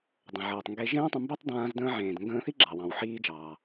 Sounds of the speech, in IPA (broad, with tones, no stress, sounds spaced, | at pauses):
dˤ ə̃˩ ʕ ɤː˩ tˤ ŋ ɡ e˧ ʒ ẽː˥ tˤ ə̃˧ m b e˥ tˤ d ãː˧ z d ə̃ː˧ ʕ ẽː˩ d ŋ ɡ ə̃ː˧ θ i˥ ɡ͡ǁ ɑ˩ w ɑ̃˩ w ħ iː˧ d͡ʒ ɑː˩